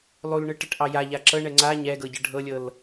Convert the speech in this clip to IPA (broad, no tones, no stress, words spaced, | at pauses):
lˠulɳɯʈəʈʔɑ jaʎa ǁɤɳɛ ŋ͡ǀa ɲɛɡɤɟə ɖʱɤlʲɤl